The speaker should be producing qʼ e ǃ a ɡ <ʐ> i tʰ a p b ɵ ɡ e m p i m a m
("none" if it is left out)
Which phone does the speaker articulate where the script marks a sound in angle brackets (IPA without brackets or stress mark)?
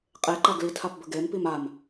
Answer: l